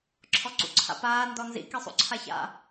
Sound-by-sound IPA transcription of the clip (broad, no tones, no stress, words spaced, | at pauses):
ǁʰɔǀṵǀʰa̰paː ndɔnzḭ kisˤṵǀʰaça̰